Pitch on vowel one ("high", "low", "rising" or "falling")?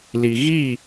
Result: low